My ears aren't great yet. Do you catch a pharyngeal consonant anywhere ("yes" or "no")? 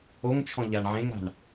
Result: yes